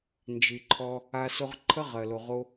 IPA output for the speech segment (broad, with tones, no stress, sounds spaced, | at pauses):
n d͡ʒ i˨ ǃʰ ɔ˧ | a˧ s o˧ ʁ ǃʰ ə˦ ʁ ɜ˨ l o˨ ʁ o˦